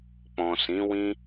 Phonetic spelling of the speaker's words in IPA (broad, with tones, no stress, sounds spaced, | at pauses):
k͡p ɔ̃˨ s ĩ˨˦ w ĩ˦